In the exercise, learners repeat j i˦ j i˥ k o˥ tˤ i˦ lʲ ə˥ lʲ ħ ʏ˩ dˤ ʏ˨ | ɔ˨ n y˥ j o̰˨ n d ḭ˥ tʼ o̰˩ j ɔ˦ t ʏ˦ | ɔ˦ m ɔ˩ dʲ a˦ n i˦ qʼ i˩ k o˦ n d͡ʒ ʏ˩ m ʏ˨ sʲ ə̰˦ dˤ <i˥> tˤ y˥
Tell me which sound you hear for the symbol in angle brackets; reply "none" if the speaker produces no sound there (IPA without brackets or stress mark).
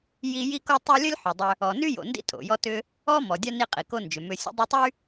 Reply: i˦